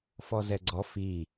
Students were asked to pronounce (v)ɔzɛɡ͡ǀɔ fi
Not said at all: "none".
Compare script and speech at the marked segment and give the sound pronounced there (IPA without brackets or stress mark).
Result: f